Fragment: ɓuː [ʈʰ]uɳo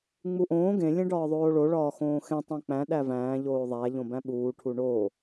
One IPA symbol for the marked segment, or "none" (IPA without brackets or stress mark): ʈʰ